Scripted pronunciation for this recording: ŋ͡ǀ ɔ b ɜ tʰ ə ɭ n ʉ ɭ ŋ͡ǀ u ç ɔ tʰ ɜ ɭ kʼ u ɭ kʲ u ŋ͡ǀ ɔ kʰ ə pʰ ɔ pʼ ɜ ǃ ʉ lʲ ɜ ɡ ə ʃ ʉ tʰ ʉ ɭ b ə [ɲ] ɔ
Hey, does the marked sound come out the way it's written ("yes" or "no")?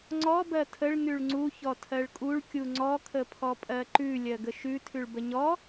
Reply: yes